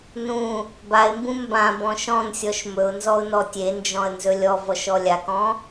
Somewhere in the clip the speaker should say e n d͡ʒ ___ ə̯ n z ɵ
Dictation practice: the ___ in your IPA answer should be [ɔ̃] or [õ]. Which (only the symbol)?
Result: ɔ̃